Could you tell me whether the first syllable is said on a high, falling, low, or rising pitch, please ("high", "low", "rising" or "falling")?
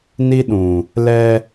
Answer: high